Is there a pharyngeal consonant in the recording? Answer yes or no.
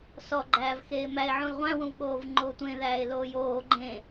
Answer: yes